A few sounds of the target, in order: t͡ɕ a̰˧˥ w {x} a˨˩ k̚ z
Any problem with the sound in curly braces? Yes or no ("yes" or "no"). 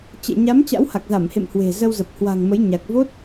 yes